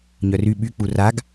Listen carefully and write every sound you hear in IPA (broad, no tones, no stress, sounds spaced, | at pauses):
ɲ œ r y ɓ y k͡p u r a ɡ